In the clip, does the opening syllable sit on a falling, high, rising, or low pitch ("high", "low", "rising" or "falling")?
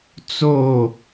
falling